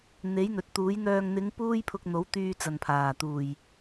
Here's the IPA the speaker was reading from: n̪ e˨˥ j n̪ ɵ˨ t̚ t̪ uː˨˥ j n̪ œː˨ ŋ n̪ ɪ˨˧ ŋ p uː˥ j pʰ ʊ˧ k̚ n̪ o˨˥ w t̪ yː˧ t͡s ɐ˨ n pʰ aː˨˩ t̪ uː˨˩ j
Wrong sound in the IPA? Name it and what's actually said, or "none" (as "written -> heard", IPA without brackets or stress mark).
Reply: none